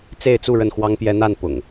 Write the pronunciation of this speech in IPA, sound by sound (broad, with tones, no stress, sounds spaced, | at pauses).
t͡s e˥˨ ɪ̯ t͡s u˥˨ ɻ ə˥˨ n x w ɑ˦ ŋ p j ɛ˦ n̪ a˥˨ n p ʊ̰˨˩ ŋ